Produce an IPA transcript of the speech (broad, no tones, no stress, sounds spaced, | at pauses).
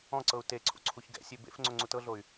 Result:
ɔ̃ ǀ ɤ u̯ t e ǀʰ ṵ ǀʰ u ç ɡ ɛ̰ sʲ e b ḛ f ŋ͡ǀ o ŋ͡ǀ u t ɤ ɮ o y̯